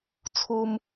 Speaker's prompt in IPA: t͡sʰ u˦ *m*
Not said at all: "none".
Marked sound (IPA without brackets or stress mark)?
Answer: m